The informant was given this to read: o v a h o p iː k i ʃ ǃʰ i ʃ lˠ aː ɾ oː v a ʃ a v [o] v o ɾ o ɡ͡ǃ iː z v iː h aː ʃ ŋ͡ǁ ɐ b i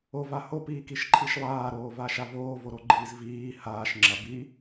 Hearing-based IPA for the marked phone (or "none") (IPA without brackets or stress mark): oː